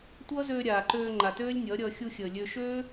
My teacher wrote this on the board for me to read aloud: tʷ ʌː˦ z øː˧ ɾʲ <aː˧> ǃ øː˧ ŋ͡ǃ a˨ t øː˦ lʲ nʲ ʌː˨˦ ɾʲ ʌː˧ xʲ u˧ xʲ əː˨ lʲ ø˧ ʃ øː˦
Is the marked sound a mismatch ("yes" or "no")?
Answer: yes